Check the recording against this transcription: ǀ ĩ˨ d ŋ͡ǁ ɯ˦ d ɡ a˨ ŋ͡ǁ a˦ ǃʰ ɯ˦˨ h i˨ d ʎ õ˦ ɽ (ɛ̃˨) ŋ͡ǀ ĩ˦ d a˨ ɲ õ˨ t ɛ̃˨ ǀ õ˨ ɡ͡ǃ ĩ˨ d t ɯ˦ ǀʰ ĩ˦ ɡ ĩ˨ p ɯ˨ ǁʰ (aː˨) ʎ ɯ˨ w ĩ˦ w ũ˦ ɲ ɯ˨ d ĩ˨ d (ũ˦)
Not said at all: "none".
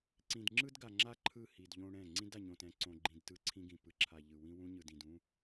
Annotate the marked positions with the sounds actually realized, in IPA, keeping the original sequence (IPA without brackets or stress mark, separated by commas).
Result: ɛ̃˦˨, a˨, ũ˦